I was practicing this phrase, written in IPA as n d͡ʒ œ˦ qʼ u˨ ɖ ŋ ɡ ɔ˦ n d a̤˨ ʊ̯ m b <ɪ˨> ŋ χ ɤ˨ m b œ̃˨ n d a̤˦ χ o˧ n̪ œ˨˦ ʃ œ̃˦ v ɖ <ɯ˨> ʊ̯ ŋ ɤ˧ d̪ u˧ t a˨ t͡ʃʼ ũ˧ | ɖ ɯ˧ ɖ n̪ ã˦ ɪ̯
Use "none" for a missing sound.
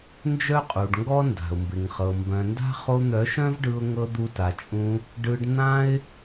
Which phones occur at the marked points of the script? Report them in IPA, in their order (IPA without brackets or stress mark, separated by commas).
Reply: ɪ˨, ɯ˧